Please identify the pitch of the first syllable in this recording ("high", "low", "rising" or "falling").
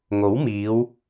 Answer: rising